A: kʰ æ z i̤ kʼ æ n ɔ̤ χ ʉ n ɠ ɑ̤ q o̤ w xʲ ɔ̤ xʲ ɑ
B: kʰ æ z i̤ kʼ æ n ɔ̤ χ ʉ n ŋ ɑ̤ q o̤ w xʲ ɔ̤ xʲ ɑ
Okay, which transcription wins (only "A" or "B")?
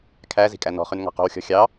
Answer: B